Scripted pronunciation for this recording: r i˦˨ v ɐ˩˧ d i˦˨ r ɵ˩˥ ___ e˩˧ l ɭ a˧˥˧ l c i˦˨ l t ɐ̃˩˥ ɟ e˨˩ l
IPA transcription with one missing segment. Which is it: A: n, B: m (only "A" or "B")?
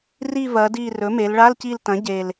B